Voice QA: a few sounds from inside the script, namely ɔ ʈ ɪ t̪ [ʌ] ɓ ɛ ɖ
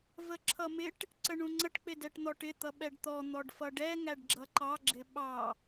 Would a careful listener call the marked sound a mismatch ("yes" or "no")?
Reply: no